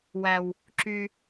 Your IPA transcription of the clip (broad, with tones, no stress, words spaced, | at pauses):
wæ˨w | ǁy˧